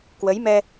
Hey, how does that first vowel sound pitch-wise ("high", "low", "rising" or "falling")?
rising